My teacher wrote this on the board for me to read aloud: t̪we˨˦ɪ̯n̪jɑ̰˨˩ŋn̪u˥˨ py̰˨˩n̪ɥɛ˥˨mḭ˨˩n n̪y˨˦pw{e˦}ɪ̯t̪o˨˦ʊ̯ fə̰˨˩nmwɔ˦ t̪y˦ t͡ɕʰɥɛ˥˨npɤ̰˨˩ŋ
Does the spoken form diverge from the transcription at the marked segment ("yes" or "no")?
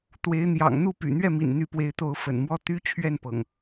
yes